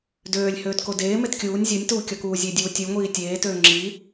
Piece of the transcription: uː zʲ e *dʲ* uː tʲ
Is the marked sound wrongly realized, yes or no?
no